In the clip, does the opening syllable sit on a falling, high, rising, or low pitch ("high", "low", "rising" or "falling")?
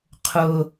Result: high